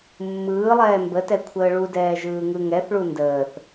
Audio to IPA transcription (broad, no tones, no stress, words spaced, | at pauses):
mːɯːlˠɛː mbətɛ kʷʰəːɭudɛː ʒɯːŋɯŋɛθɭu ndəːθ